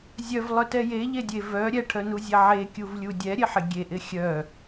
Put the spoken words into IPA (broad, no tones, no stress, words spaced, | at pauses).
zʲœvlˠœtɛ jeʎedʲe vœ ɾʲɛʈʰœnuzʲɛ ʕekʲuvlʲu dʲɛɾʲeħɪ ɡʲeʔɪ xʲœ